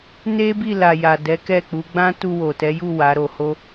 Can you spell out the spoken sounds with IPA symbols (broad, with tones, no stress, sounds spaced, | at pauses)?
n e˦ b i˦˨ l a˨ j a˨ d ɛ˨˦ k ɛ˦˨ k͡p u˨˦ ɡ͡b ã˦ t u˧ w o˨ t ɛ˨˦ j u˦˨ w a˨˦ ɾ o˧ h o˦